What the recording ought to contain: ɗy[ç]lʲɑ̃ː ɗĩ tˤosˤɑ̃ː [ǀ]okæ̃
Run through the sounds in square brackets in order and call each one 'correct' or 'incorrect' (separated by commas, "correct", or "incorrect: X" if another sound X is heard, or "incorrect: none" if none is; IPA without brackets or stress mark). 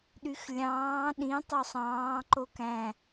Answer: incorrect: x, incorrect: ǃ